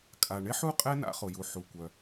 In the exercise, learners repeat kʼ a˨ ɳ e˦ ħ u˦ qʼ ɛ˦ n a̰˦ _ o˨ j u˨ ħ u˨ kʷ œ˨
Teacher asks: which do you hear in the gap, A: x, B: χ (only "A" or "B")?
B